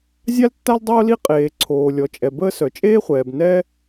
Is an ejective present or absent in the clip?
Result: present